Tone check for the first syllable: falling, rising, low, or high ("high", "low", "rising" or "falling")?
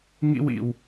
high